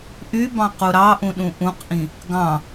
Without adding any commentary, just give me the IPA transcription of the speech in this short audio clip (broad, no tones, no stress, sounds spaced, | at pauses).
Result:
ʔ y b ɑ̃ q u ɾ ɑ ʔ ũ ɗ ũ ʔ ũ q ʔ ĩ | ɡ ɑ̃